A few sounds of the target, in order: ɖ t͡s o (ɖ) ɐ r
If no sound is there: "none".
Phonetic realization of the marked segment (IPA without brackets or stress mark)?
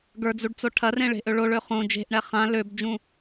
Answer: ʈʰ